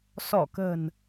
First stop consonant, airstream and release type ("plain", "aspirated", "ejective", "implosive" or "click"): plain